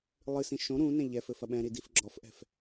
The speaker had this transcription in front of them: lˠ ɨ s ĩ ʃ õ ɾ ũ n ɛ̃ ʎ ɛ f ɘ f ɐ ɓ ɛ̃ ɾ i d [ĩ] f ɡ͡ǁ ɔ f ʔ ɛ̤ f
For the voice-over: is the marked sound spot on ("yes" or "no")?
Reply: no